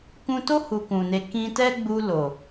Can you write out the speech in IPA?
k ũ˦ t o˦ h u˧ k ũ˨ n e˧ k ĩ˧ t ɛ˦ ɡ͡b u˧ l o˨

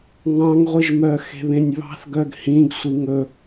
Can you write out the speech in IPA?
ŋ ɑ̃ ŋ ʁʷ i ʒ m œ x e̤ β ẽ nʲ β ɑ̤ θ ɡ œ ɡ h ĩ ɡ sʷ i ŋ ɵ

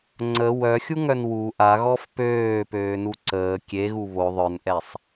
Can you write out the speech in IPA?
ŋ͡ǀ ə w œ xʲ u ŋ œ n w u ʔ a ɣ ɔ f p øː p øː n u ǀ əː kʲ e ɣ u β o ðˤ œ n ʔ ɛ sˤ

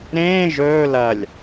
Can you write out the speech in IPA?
ɾ ẽː ʒ ɵː l ɐ lʲ

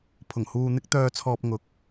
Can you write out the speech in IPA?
pʰ ʊ˨˩ ŋ h uː˧ n̪ ɪ˥ k̚ t̪ œː˧ t͡sʰ ɔː˧ p̚ ŋ ʊ˨˥ k̚

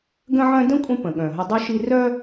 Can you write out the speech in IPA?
ɡ ə̃˦ ʕ œ̃˦ d ə̃˥ kʷʼ ə̃˦ p ə̃˩ ɠ œ̃˩ ɦ ə˨ dˤ y˥ ʃ i˥ r œ˥

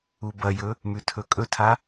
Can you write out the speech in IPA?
u b ɐ j ɵ | m ʉ tʰ ɵ kʼ ɵ tʰ a

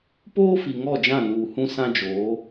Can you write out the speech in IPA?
p oː˦ f i˨ ŋ ɔ˦˨ d͡ʒ ã˦˨ n uː˨ h ũ˦ s ã˦ d͡ʒ oː˨˦

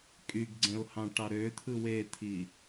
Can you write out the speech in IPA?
kʼ y ɡ ɡ͡ǀ ẽ ʊ̯ h ɑ̃ ʈ ɑ ɾ ø t̪ʰ ɯ w e t̪ʰ i

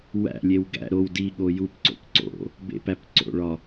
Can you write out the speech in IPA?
w æ̰ lʲ e w ɡ æ̰ ɾ o w d i ɠ o j u p ǀ o̰ p ǀ o̰ | b ḛ p æ p ǀ o̰ ɭ ɒ

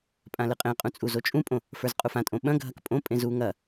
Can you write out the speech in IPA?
pʼ ã l ɨ qʼ ẽ qʼ ũ t͡sʼ u z o t͡ʃʼ ũ pʼ õ | f ə˞ z qʼ u f ã tʼ õ ɓ ɐ̃ ɡʱ ɐ k pʼ õ pʼ ẽ z u ŋ ɐ

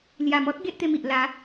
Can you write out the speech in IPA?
l j a˨˩ m ɔ˦ t̚ ɡ e˦ ʔ t̪ e˧ m i˨ ʔ l a˨˦

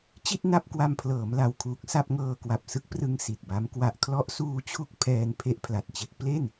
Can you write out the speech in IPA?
t͡ɕ i˥˩ t̚ n a˥˩ p̚ k w a˧ m pʰ l ɤː˩˦ m l a˨˩ w kʰ uː˨˩ k̚ s a˥˩ p̚ ŋ ɤː˧ k w a˨˩ p̚ s ɯ˦˥ k̚ p r ɯ˧ ŋ s i˨˩ t̚ b a˦˥ m k w a˨˩ ʔ kʰ l ɔ˦˥ ʔ s uː˧ t͡ɕʰ u˦˥ k̚ pʰ ɛː˧ n pʰ e˦˥ ʔ pʰ l a˨˩ t̚ t͡ɕ e˦˥ k̚ p l e˥˩ n

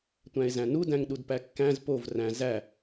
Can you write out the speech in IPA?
tʷ æ̃ e̯ z æ̃ n u d æ̃ ŋ ɗ u d p æ kː æ̃ z p o v r æ̃ z æ

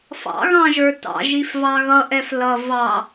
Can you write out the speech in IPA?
f ɑ̰ ɣ ɑ̃ ʒ ə˞ t ɑ̰ ʒ i f v ɑ ɣ ʌ ʔ ɛ f l ʌ v ɑ

